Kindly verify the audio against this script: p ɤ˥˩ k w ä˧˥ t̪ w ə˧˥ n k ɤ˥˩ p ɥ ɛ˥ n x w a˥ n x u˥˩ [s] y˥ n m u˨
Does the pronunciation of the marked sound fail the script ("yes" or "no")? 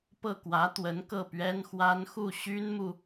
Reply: yes